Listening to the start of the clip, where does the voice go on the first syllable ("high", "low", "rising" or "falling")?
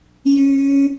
high